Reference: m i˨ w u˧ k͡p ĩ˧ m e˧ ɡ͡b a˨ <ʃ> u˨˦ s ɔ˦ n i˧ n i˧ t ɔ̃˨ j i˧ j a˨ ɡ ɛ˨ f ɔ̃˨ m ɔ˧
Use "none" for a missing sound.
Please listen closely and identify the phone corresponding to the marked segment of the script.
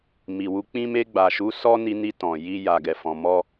ʃ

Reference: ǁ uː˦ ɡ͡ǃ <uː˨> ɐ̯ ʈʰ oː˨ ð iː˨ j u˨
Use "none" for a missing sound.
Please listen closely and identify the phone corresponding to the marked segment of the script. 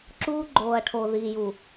oː˨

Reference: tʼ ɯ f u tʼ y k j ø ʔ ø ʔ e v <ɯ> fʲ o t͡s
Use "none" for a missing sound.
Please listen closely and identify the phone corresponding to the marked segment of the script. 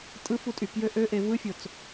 ɯ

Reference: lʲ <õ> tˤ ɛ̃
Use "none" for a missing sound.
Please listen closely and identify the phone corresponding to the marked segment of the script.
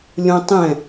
õ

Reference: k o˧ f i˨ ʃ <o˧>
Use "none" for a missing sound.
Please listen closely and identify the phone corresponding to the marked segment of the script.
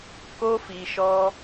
ɔ˧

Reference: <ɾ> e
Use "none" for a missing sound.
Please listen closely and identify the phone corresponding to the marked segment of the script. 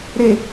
ɾ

